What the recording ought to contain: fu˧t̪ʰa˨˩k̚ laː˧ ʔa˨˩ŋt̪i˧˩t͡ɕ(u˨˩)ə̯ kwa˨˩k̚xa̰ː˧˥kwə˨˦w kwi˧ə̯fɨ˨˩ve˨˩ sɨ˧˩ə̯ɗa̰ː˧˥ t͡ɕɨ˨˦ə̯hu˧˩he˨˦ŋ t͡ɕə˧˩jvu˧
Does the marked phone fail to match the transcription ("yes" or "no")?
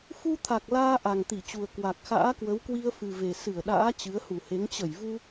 no